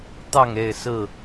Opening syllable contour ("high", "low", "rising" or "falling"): falling